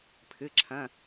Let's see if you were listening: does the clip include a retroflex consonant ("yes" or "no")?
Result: no